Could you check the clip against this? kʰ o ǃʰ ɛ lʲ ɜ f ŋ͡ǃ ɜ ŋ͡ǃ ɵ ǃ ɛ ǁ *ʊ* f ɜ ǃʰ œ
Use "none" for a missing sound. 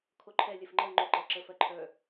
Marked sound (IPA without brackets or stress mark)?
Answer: ə